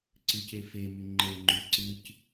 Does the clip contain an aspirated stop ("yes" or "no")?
no